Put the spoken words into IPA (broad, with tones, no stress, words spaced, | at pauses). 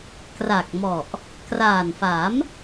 kra˨˩k̚mɔ˨˩ʔ | kraː˨˩nfa˩˦m